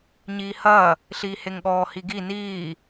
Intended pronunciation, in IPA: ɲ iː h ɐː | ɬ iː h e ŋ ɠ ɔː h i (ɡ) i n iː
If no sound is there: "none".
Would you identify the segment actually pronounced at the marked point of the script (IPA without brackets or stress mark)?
ɡ